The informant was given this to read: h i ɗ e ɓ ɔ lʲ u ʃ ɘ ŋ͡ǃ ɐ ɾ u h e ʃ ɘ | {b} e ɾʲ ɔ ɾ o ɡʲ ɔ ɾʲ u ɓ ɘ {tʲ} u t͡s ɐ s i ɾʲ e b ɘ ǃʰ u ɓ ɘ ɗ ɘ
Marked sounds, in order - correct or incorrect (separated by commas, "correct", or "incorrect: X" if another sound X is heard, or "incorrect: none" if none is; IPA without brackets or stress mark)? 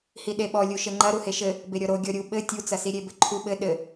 correct, correct